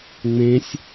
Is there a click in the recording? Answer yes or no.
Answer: no